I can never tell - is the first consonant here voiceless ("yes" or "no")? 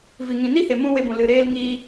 no